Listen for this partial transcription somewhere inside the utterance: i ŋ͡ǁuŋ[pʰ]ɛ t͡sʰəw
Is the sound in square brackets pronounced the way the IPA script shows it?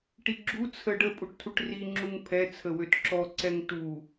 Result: yes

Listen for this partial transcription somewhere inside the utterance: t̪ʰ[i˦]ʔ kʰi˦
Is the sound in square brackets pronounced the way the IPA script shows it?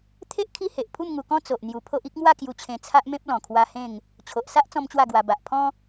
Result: no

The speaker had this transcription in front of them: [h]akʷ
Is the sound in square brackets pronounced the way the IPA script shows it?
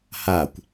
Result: yes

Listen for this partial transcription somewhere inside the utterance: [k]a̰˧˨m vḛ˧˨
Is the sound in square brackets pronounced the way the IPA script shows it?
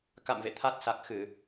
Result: yes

